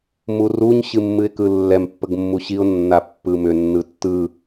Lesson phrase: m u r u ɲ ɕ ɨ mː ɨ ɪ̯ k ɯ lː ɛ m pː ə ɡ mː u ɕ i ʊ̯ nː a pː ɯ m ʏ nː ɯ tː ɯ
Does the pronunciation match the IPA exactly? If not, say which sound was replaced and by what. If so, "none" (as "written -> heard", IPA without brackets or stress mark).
none